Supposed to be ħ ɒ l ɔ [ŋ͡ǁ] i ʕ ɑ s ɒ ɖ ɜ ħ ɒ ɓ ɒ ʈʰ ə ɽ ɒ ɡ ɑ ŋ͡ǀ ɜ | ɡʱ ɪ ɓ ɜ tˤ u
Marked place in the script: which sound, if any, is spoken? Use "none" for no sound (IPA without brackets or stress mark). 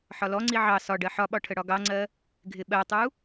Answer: ŋ͡ǀ